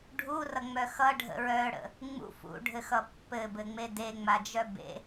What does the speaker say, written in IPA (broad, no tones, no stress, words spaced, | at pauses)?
ɖʱurʌŋ͡mœ xʌɖʱə̰ ɹœɽə̰ | ŋ͡mṵ fṵɖʱɘxʌ pːɘbɘŋ͡me deŋ͡mad͡ʒœ bḛ